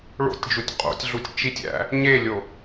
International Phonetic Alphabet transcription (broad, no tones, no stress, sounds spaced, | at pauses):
ɭ o̰ tʲ d͡ʒ u tʲ qʼ o̰ tʲ ɮ u tʲ t͡ʃ i tʲ æ̰ | ɲ e lʲ o